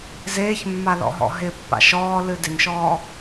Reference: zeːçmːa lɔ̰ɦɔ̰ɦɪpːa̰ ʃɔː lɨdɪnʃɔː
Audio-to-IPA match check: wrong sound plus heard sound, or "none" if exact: none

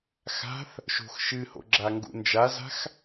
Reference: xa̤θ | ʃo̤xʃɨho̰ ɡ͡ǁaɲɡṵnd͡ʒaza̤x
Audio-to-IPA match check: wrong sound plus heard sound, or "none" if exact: ɲ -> ŋ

